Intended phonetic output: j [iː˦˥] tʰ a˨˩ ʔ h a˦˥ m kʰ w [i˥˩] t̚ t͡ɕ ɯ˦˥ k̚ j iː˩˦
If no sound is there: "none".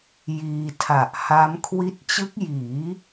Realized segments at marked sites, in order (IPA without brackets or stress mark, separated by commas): iː˧, i˦˥